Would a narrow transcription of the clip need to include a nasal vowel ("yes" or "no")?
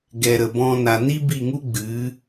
yes